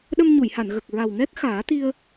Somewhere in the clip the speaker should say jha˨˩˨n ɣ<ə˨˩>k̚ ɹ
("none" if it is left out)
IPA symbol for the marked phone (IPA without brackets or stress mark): ə˨˩